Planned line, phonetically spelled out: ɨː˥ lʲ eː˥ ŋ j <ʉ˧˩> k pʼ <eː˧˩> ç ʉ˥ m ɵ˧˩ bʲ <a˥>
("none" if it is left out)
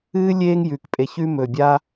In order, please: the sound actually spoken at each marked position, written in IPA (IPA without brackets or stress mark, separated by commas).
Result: ʉ˧˩, e˧˩, a˥